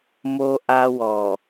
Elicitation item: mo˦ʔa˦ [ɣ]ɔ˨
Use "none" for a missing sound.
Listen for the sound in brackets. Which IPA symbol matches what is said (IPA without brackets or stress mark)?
w